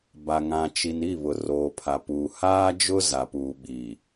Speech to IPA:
b a˨ ŋ ã˨ t͡ʃ i˨ n i˦˨ β ʊ˨ r oː˨ pʰ a˨ p uː˨ h aː˦ d͡ʒ ʊ˦ z a˨ p uː˨ ɓ i˨

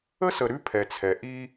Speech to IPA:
ə˦ s ə˨ ɾ ʉ˦ pʰ ɛ˨ t͡sʰ ɛ˨ ʔ i˦

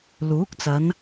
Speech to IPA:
l uː˨˥ k̚ t͡s ɐ˨˧ n

